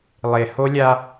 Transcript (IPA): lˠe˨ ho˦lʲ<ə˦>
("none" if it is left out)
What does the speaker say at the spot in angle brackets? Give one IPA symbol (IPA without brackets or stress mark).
a˦